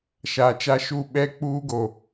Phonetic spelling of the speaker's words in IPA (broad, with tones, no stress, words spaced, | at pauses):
ʃaː˨t͡ʃa˦ʃu˦˨ ɓɛ˦ k͡puː˦ɡo˨